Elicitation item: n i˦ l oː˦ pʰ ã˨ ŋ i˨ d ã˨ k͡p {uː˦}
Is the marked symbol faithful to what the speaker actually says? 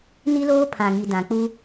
no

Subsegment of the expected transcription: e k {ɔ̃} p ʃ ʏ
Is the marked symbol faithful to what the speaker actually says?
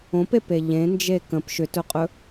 no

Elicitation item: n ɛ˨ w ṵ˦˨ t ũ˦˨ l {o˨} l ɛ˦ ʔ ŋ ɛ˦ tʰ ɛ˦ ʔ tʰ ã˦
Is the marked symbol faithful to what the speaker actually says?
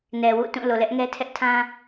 yes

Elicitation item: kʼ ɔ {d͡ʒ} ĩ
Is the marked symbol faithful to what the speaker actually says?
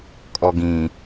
no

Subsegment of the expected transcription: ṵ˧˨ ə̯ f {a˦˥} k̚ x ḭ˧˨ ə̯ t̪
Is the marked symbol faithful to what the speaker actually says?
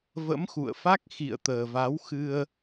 yes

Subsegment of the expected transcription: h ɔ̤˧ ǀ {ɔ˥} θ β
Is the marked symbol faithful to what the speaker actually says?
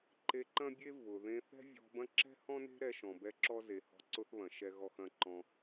no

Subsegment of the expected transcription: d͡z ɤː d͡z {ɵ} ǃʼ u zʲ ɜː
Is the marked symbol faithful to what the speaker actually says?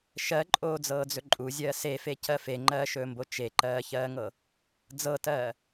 yes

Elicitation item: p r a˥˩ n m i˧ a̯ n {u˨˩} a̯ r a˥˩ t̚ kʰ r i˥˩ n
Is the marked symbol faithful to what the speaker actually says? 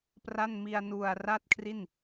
yes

